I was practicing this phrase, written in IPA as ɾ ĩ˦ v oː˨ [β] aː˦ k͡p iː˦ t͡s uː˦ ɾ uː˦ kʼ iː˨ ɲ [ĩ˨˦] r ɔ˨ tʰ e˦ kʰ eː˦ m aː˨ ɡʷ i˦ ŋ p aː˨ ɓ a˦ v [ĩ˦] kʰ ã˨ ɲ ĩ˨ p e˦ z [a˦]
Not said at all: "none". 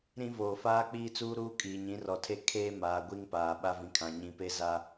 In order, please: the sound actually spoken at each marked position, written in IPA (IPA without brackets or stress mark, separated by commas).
f, ĩ˨˦, ĩ˨, a˦